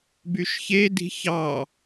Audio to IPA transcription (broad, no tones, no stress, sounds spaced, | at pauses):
b y ʃ ç e d i̤ ç ɑ